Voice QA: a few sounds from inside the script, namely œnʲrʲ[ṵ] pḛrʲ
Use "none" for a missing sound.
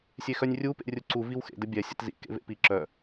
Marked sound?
u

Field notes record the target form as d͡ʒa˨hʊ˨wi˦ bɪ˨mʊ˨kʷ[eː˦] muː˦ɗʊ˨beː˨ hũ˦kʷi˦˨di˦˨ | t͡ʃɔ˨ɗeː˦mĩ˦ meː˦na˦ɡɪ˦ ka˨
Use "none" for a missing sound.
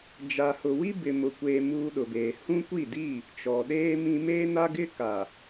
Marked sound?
eː˨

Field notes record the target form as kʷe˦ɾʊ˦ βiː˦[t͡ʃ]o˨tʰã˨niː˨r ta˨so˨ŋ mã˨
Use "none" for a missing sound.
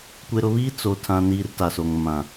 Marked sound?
t͡s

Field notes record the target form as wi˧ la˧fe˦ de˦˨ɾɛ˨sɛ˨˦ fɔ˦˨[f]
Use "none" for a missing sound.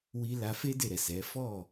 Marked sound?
none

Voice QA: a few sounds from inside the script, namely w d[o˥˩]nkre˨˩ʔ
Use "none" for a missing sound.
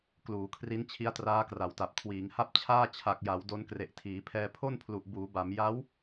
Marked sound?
o˧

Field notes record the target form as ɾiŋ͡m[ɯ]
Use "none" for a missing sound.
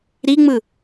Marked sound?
ɯ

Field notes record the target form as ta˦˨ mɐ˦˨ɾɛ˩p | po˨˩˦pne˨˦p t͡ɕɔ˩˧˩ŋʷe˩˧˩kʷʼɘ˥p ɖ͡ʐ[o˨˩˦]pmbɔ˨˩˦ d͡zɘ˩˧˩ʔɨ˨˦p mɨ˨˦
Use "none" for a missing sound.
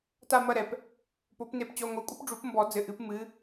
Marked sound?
u˨˩˦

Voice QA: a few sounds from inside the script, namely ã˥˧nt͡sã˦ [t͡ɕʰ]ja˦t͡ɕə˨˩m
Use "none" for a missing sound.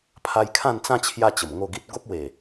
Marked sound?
t͡ɕʰ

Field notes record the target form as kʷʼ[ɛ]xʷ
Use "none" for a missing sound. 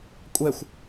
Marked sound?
ɛ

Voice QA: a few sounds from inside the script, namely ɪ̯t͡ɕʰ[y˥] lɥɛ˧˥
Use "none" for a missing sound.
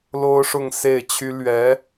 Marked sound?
y˥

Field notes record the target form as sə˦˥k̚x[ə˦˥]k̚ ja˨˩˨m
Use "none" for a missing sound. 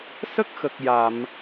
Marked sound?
ə˨˩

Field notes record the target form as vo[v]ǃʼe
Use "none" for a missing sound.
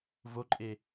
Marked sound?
none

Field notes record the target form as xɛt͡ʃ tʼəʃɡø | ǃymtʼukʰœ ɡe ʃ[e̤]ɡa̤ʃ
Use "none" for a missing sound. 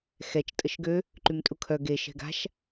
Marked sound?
ɛ̤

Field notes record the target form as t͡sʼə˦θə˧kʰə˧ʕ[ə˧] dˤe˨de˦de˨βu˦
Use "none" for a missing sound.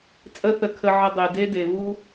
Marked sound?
ə˧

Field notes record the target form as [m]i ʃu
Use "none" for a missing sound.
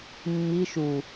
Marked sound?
mː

